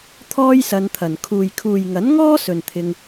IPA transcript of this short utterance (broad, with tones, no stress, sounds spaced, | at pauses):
t̪ʰ ɔː˥ j s ɐ˧ n t̪ʰ ɐ˨ n kʰ uː˨ j kʰ uː˨ j ŋ ɐ˨˥ n ŋ ɔː˥ s ɵ˨ n t̪ʰ ɪ˧ ŋ